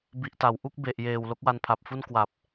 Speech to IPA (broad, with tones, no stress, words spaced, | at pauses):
bi˨˩ʔta˩˦wʔu˥˩k̚ be˨˩ʔjeː˨˩w lo˦˥k̚wa˧npʰa˨˩p̚fu˥˩n kwa˨˩p̚